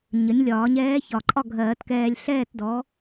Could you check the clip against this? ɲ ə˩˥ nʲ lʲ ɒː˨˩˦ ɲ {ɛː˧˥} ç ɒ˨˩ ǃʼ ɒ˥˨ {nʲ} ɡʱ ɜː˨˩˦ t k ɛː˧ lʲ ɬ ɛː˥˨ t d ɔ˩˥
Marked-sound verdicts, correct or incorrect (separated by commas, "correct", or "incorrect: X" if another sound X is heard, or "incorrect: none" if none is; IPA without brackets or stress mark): correct, incorrect: none